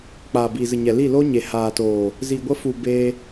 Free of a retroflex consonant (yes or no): yes